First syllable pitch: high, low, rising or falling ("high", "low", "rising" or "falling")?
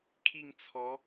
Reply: falling